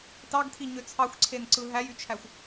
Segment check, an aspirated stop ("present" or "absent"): present